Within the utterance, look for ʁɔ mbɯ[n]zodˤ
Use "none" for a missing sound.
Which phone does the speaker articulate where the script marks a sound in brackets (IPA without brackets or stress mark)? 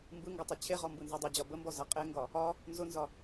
n